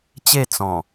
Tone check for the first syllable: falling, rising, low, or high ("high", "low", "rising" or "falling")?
falling